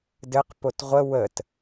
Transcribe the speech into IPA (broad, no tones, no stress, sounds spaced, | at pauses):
d ɘ q p o t ʁʷ ə w ə t